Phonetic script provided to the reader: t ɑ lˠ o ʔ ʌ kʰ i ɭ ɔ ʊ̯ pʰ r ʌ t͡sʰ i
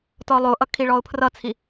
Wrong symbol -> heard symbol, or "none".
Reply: ɑ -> ɔ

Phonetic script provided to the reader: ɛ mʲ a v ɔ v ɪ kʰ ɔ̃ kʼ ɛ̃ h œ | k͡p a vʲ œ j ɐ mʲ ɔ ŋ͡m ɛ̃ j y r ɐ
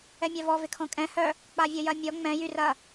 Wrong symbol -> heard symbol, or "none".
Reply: none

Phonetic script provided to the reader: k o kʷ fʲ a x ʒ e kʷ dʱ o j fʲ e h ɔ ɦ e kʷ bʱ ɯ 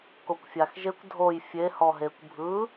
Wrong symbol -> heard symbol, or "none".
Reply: none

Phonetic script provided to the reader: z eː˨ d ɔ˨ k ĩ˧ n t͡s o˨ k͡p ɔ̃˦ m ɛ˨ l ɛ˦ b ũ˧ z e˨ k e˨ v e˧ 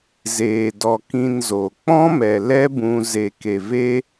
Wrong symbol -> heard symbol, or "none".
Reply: t͡s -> z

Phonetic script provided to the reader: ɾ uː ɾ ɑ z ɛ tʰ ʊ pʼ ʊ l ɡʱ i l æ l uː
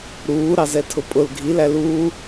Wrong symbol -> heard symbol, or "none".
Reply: none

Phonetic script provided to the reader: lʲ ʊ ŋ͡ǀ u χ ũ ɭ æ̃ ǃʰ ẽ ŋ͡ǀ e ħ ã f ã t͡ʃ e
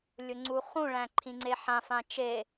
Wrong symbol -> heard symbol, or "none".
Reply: ẽ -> ĩ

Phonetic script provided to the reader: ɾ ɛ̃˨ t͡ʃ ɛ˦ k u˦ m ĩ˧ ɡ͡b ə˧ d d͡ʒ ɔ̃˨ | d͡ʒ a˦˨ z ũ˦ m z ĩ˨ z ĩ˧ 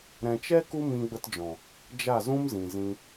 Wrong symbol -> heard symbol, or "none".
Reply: d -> t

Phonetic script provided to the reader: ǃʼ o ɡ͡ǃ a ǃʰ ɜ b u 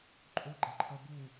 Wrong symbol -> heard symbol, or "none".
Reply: none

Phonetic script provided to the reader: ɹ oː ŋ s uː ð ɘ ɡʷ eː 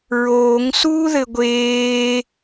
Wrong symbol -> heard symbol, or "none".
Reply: none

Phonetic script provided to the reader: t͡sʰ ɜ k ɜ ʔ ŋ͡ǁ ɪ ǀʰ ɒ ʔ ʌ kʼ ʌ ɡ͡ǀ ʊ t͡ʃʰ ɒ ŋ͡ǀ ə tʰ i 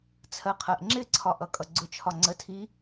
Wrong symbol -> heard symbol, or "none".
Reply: k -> qʰ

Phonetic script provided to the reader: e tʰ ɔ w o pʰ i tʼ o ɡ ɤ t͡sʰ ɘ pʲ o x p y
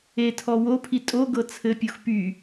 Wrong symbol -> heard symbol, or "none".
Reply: none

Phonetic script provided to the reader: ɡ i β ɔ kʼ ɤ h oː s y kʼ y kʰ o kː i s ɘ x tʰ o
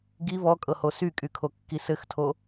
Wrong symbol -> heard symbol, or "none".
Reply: oː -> o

